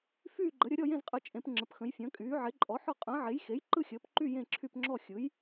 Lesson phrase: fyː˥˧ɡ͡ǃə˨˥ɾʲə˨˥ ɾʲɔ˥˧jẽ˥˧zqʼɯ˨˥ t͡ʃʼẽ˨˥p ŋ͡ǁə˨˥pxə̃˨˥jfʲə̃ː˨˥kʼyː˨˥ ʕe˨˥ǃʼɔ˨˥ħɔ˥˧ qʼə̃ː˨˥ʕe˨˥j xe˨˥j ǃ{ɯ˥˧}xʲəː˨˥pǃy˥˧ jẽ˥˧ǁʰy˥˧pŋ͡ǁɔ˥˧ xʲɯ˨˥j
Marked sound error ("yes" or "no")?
no